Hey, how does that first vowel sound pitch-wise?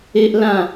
high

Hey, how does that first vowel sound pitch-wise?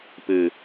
low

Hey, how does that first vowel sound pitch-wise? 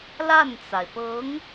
falling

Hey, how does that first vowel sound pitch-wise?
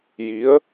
rising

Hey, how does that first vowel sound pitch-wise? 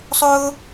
high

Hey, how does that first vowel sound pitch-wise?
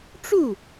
falling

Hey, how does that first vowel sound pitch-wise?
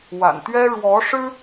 low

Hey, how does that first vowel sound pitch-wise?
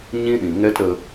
high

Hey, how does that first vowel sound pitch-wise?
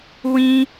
high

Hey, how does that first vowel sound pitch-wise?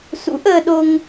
rising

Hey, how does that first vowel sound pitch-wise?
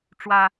high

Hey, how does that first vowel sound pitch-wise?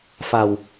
low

